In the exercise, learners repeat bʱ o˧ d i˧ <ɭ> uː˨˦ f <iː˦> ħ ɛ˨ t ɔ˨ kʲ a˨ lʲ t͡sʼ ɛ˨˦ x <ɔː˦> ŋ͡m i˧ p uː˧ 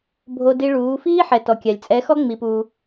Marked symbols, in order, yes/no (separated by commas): yes, yes, no